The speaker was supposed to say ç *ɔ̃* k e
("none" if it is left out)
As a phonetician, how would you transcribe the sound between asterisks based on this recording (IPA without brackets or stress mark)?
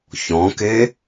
ɔ̃